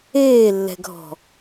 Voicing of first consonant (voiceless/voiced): voiced